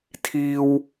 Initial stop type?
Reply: aspirated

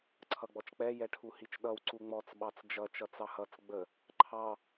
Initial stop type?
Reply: click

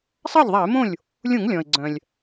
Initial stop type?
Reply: click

